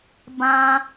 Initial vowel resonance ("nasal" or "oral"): nasal